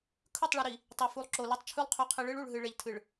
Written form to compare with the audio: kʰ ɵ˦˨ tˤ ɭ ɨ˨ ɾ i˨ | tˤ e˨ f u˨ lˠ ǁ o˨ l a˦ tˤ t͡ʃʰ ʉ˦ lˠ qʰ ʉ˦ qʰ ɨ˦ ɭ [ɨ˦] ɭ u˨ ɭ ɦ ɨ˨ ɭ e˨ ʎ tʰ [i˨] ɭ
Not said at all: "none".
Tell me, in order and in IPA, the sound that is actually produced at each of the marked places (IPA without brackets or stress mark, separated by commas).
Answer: ɨ˦, ɨ˨